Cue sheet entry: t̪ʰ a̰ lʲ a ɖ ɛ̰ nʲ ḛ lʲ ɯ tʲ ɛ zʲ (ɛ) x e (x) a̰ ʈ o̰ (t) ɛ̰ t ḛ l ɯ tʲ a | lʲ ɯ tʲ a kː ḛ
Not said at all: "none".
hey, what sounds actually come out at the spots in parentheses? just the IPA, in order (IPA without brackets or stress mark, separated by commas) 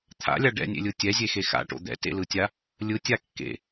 e, x, d̪